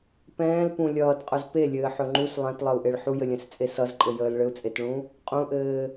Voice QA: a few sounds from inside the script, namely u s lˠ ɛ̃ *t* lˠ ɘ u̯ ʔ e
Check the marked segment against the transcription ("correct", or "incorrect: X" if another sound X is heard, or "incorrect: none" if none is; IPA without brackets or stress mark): correct